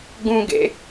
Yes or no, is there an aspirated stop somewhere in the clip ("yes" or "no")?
no